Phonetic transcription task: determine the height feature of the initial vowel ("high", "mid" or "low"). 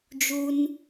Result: high